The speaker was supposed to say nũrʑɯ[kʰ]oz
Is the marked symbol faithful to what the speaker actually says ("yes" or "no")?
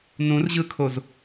yes